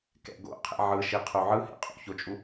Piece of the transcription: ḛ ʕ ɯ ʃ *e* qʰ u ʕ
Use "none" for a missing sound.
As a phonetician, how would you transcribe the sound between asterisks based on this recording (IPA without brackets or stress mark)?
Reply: i